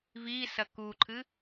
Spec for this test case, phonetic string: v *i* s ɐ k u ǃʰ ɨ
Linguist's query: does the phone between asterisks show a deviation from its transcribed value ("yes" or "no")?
no